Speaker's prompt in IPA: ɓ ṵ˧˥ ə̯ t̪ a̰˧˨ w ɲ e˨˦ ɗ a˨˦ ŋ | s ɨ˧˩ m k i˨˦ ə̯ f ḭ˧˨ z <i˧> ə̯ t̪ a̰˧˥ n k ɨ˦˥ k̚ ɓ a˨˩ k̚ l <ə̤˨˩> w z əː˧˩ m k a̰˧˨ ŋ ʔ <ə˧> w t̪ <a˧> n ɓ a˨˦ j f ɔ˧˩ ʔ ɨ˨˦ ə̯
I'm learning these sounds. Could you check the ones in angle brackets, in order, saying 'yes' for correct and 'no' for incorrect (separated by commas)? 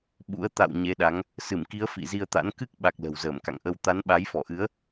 yes, yes, yes, no